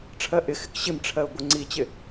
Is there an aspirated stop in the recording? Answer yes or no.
yes